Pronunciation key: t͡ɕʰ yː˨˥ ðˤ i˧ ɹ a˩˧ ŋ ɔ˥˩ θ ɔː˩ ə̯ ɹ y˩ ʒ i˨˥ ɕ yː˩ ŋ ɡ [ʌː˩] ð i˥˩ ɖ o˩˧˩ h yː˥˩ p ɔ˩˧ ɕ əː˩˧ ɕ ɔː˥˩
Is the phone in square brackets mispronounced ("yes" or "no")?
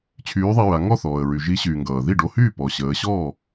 no